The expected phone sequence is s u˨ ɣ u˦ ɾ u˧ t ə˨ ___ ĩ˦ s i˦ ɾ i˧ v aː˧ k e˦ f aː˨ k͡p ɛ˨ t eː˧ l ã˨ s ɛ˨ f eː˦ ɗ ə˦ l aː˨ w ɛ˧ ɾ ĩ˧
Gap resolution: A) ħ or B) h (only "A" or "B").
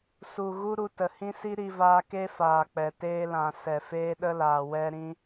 B